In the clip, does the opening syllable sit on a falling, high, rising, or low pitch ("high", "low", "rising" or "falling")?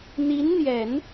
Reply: rising